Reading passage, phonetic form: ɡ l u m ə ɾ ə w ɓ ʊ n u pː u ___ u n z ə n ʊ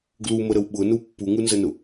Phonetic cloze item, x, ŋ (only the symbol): ŋ